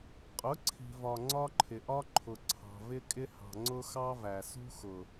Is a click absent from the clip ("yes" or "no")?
no